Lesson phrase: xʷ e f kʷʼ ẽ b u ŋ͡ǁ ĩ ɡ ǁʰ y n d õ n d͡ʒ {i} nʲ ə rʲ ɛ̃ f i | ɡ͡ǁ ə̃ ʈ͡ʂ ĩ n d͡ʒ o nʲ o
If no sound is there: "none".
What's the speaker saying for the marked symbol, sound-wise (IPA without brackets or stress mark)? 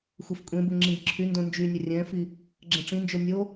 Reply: y